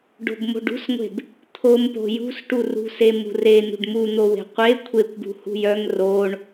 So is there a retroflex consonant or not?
yes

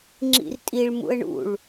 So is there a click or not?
yes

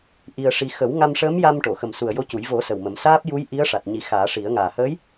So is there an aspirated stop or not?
no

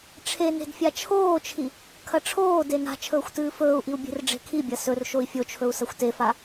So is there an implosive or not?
no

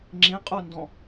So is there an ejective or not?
yes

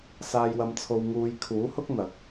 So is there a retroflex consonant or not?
no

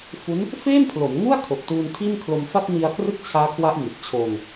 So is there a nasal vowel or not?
no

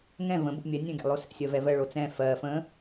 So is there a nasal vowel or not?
yes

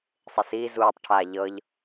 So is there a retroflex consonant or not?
yes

